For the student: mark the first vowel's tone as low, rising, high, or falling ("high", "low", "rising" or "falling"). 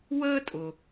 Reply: high